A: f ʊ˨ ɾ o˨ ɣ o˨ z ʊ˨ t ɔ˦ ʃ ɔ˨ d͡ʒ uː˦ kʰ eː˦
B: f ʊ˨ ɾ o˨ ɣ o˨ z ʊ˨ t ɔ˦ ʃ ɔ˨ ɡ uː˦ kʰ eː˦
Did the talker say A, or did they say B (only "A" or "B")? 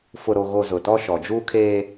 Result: A